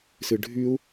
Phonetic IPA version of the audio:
s ɨ ɖʱ y u̯

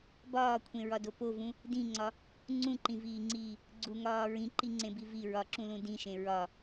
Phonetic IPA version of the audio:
b ɒː kʷʰ ẽ ɹ ɒ d o p o v ũ | d ĩ ŋ͡ǀ ɒ | ŋ͡ǀ ũ ǃ ĩ v iː ŋ͡ǀ iː | ɡ͡ǀ u ŋ ɒː ɹ ĩ ǃ i ŋ͡ǀ ẽ b i v i ɹ ɒ ǁ ũ l ũ d ĩ ʃ ẽ ɹ ɒ

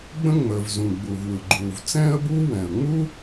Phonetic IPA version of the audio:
ɡ͡b ə̃˥ ŋ͡m əː˩ v z ũ˩ ɡ͡b u˩ v w ɯ˩ ɡ͡ǃ uː˩ v t͡s ɛ̃ː˥ ə̯ b uː˥ w ɛ̃˩ ə̯ ŋ͡m u˥

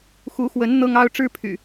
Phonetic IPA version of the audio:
x u˨˦ x w ə˨˦ n n̪ ɤ˦ ŋ ɑ˦ ʊ̯ ʈ͡ʂ ɻ̩˦ pʰ y̰˨˩

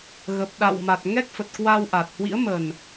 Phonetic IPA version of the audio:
ɣ ə˨˩ p̚ ɗ a̰˧˨ w m a˨˩ t̚ ŋ ɛ˦˥ k̚ f ə˨˩ t̚ k w a˧ w ʔ a˨˩ t̚ h w ḭ˧˥ ə̯ m ə˨˩ n

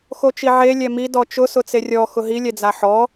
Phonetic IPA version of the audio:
x o t͡ʃ i ʕ e lʲ ɛ m i d ɔ t͡ʃ ʊ s ʊ t͡s e rʲ ɔ x ʊ ɦ i lʲ ɛ d͡z a ħ ɔ

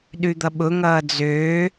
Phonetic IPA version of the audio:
ɗ ʉ d̪ ʌ ɓ ʊ ŋ ʌː d͡z øː

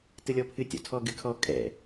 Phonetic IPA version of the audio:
t ɯ lʲ ɔ pʰ ɨ tʲ ɔ̰ tʰ ɔ ɡ ɨ kʰ ɔ kʼ ɛ̰

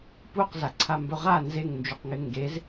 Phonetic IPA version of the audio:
p u q z a ǀʰ a m b ɵ ʁ a n z e ŋ n d͡ʒ u q ŋ ɪ ŋ ɡ e z

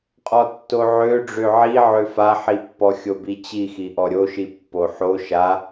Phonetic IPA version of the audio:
qʼ ɔ tː o ʕ ø ɖ͡ʐ ø ʕ i ʕ ø f a ħ i pː ɔ xʲ o b i t͡ɕ i x i ʔ ɔ ɾʲ o ʃ i pː o ħ o ʃ a

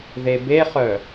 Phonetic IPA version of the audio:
ð e b e χ œ

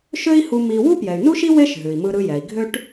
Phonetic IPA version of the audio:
ʃ ø˥ i̯ h u˧ m i˧ w u˥ p j ɛ˩ y̯ n u˥ ʃ i˥ w e˥ ʃ ɦ ʉ˩ i̯ m ɯ˧ ɾ ɯ˧ j ɛ˩ i̯ ɡʱ ø˥ ʈ

